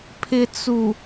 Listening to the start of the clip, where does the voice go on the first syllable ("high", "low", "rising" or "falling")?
low